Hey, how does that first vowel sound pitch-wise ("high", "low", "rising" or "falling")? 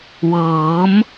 rising